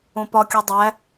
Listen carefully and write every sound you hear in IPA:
õpɒkʲo dˤæ

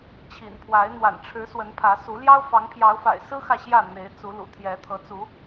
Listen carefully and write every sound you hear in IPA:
t͡ɕʰḭ˨˩npʰwa˨˦ɪ̯ n̪wa̰˨˩nʈ͡ʂʰɻ̩˨˦ swə˨˦npʰä˨˦su˨˦ ljɑ˦ʊ̯fɑ˨˦ŋ pʰjɑ˨˦ʊ̯fa̰˨˩ɪ̯sɹ̩˦ xä˥˨ɕjä˥˨ n̪e˨˦ɪ̯t͡su˨˦lṵ˨˩ t̪ʰjɛ˨˦t̪ʰɤ˨˦ t͡su˨˦

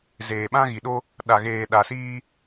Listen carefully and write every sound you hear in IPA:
zeː˨ɓã˦ɣi˨ ɗo˦ | ɗa˨ɣeː˨ɗa˨siː˦

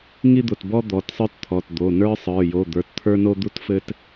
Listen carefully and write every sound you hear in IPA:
ŋi˥d̪ʊ˩˧˩tbɔ˥ d̪ɔ˩˧˩tsˤə˞˥tt̪ʰɔ˩˧˩t d̪o˩˧˩nə˞˥ sˤə˞˩˧˩jo˩˧˩d̪ə˞˩˧˩t t̪ʰə˞˥no˥d̪u˥tfɘ˥t

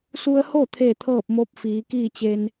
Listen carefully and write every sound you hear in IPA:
su˧ə̯ho˥˨ t̪ʰeː˥˨t̪ʰɤː˥˨p̚ mo˧˥p̚fiː˩˧kiː˥˨t͡ɕe˧n

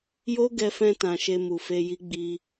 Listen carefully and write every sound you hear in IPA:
jo˦ɡɛ˧fɛ̃˧tã˨ ʃe˧mu˨fe˧ji˦ ɡ͡bi˧

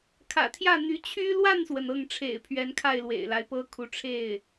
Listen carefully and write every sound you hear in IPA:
kʰä̰˨˩t̪ʰjä˥˩ n̪y˧˥ t͡ɕʰy˥ lwa˥˩nswə˩n ɤ˥˩ŋʈ͡ʂʰḛ˨˩ɪ̯pʰɥɛ˧˥n kʰa˥˩ɪ̯ lwḛ˨˩ɪ̯la˦ɪ̯pɤ˥kʰu˧˥ ʈ͡ʂʰe˥˩ɪ̯

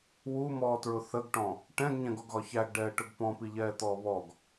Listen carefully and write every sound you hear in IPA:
wumɔːtɹʊ θəɡʈɔ̃ | ʈɛ̃ɡɲɛ̃ɡɔɡɣɒ çæɡɖɛːʈʊɡ pɔ̃piʎɛːt̪ɔː βɔɡ

